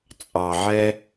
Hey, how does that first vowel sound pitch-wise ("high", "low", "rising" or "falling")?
low